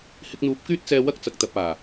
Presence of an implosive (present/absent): absent